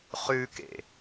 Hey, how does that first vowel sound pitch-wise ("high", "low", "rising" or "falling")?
high